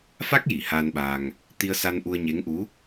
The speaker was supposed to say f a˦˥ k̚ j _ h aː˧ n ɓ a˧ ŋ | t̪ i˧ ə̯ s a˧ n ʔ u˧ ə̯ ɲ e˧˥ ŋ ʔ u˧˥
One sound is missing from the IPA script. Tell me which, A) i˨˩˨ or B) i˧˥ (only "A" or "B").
A